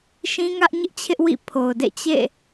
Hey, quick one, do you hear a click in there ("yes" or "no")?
no